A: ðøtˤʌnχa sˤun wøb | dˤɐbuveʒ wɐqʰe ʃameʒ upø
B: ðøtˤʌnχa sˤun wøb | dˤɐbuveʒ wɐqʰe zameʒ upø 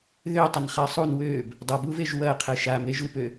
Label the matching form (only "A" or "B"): A